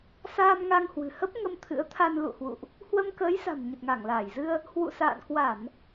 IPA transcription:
s aː˧ m ŋ a˧ ŋ h w ɨ̤˨˩ h ə˦˥ p̚ ŋ ə˧ m t̪ʰ ɨ̰˧˥ ə̯ t̪ʰ a˧ n l ṵ˧˨ h w ṵ˧˨ ʔ | h w ə˧ m k əː˨˦ j s a̤˨˩ m ɲ ə˨˩ t̚ ŋ a˧˩ ŋ l aː˧˩ j z ɨ˧ ə̯ | h w ṵ˧˨ s a̰ː˧˨ n k w a˧˩˨ n

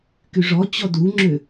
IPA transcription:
k y ʐ ɔ t͡ɕ ɔ d u ŋ͡ǁ ø

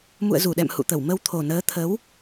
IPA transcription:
m ṵ˧˨ ə̯ z u˧˩ ɗ ɛ̰˧˨ m h ṵ˧˨ t̪ ə˧˩ w m ə˧ w t̪ʰ o˨˩ n əː˨˦ t̪ʰ ə˨˦ w

